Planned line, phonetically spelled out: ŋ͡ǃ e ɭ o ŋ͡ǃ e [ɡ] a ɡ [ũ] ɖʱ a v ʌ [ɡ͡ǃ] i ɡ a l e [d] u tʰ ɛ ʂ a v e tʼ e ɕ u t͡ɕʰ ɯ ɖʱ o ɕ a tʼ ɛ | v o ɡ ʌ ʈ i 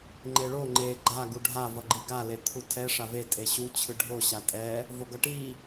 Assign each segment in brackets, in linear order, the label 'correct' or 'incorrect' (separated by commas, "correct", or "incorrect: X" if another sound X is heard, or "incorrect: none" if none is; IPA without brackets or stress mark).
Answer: incorrect: ɡ͡ǃ, incorrect: u, correct, incorrect: t̪ʰ